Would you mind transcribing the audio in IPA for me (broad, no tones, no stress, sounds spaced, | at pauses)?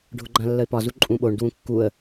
ɖʱ ʊ ɡ͡ǃ ã lː ə ɪ̯ p ɒ z u ǃʼ ũ ɓ o ɳ d w ũ kː u ə̯